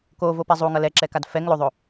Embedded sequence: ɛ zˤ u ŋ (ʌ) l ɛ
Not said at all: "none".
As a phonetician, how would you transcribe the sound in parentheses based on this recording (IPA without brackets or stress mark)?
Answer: ʌ